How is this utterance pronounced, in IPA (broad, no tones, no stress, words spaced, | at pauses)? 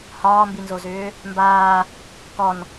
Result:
hɒːmbinzozʏː | mbaː | kɔn